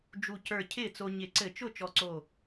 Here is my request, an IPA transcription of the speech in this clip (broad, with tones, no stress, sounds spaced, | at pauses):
d͡ʒ u˧˩ c ə˞˧˩ cʰ ɪː˥˩ t͡s o˧ ɲ ɪ˧˩˧ ǀ ɘ˧˩˧ t͡ʃ ʊ˥˩ t͡ʃ ɔ˧˩ ǀ o˧˩